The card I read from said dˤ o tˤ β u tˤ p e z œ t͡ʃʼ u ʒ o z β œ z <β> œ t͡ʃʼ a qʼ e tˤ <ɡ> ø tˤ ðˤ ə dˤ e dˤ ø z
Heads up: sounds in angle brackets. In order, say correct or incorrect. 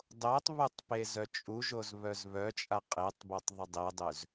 correct, incorrect: b

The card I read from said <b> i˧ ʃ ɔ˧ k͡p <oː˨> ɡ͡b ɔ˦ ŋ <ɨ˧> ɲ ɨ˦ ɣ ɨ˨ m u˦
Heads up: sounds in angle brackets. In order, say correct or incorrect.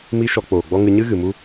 incorrect: m, correct, correct

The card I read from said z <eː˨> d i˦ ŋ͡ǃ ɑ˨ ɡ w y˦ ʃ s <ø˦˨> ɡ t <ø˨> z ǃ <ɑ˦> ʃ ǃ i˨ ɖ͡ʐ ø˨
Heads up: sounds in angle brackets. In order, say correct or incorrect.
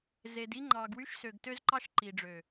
incorrect: e˨, incorrect: ø˨, incorrect: ø˦, correct

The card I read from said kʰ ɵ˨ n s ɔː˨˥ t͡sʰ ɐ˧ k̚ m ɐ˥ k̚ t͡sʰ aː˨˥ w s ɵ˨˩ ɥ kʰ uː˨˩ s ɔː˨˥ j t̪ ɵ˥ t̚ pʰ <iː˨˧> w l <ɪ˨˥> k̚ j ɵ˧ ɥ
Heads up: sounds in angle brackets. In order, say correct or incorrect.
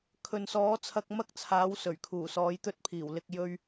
incorrect: iː˨˩, incorrect: ɪ˧

